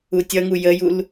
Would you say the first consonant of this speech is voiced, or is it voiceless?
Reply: voiceless